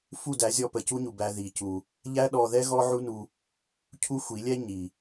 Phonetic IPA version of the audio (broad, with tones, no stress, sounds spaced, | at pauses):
f u˦˨ d æ˨˦ zʲ ɔ˧ p ə˨ c u˦ ɲ u˨ b æ˧ ð i˨ c u˨ | ʎ æ˦ ɗ ɔ˧ ð ɛ˦ ɣ ɔ˦ ʕ u˦ n u˧ | cʰ u˦ xʷ i˨˦ lʲ ɛ˦ ɲ i˨